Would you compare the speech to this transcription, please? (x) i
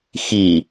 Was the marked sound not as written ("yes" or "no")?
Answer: no